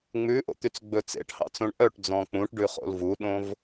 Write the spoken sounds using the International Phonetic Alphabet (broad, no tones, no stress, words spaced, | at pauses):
ŋ͡mʉʔo̰t̪yt͡sɡ͡bɵ t͡sḛʈhɑ̰t͡sõɳ ʔœʈd͡zɔ̃ k͡pũʈɖʉχo̰l vuɗõv